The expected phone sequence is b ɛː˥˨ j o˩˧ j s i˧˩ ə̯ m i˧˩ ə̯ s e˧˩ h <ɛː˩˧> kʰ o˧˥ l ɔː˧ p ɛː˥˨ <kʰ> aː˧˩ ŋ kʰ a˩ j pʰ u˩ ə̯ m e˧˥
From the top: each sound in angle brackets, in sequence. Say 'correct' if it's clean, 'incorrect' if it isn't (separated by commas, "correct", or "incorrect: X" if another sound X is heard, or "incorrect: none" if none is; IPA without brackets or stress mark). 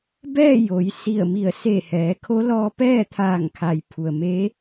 correct, incorrect: t̪ʰ